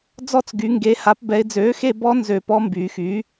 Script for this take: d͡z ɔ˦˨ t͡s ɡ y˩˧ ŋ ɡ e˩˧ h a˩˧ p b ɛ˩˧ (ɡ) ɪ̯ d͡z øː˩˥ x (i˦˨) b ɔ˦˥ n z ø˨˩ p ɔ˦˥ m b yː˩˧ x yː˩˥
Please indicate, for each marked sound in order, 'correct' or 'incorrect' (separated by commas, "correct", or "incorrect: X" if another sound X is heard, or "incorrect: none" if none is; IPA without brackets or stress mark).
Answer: incorrect: none, incorrect: e˦˨